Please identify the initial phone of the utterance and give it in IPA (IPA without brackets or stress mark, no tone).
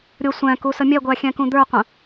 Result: ɾʲ